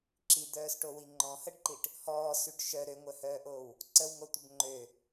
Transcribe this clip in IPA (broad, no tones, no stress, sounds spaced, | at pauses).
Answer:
ǁ i d̪ œː s ʈ o w i ŋ͡ǃ ɔ̃ h ə ɖ ǃ i ʈ | h ɔː s y ɖ ʃ œ ɾ ø ŋʷ œ h œː ʔ oː w | ǀ ə w ŋ o tʷ ə b ŋ͡ǃ ø